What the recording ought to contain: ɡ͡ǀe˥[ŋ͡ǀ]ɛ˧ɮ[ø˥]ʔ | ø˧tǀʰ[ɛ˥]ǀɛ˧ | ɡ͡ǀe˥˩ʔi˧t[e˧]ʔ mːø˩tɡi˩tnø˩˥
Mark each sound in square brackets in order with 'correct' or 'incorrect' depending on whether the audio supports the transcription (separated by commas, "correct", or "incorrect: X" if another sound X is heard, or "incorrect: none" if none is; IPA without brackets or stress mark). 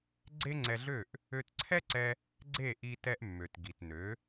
correct, incorrect: ø˥˩, correct, incorrect: ɛ˧